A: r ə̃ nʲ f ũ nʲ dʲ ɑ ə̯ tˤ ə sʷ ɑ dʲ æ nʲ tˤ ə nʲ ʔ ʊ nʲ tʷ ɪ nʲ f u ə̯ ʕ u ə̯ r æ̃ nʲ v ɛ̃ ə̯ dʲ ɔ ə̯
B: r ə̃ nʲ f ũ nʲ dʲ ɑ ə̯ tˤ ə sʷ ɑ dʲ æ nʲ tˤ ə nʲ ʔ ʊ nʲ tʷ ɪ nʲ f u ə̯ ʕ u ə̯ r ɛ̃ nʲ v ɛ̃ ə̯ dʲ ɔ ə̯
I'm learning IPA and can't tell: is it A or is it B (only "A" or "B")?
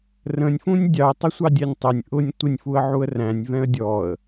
A